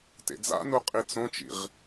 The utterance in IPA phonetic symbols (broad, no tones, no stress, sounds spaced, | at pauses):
t ḛ d͡z a̰ n u qʼ i t͡s õ t͡ʃ ḭ ʁ